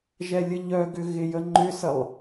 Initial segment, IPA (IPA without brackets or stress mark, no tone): ʒ